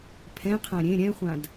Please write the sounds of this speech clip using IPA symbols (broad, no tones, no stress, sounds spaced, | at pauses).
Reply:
pʰ ɛ̃ qʰ ã ɾʲ ẽ ɾʲ ɛ̃ χʷ ã d